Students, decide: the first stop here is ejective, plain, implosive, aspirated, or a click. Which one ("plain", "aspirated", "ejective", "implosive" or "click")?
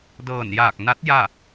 plain